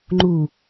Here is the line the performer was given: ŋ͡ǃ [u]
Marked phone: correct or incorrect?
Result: correct